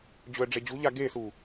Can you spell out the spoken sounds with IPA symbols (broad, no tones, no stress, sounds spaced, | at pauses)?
d͡ʑ ɵ ə̯ ɖ͡ʐ e d͡ʑ u ʎ a ɡ e s u